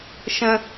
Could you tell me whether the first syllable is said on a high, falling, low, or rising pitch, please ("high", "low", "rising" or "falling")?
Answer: high